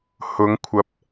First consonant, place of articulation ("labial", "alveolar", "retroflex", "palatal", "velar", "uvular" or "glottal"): glottal